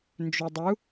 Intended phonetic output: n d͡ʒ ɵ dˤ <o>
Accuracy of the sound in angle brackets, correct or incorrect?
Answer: incorrect